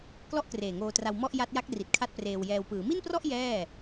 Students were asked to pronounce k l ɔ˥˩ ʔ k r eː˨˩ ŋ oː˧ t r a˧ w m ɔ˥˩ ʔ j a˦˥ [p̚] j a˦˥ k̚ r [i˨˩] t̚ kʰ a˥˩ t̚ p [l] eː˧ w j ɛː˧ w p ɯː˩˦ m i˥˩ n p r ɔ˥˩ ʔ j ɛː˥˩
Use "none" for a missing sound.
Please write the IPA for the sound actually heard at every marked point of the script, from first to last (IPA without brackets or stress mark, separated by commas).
t̚, i˨˩, r